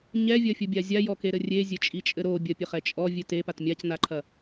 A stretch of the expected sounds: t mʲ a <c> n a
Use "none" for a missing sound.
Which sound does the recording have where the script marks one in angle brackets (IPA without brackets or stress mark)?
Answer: c